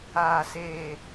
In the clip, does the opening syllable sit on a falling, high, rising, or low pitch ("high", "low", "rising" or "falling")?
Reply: low